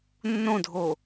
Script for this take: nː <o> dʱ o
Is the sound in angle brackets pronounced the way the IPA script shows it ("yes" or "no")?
no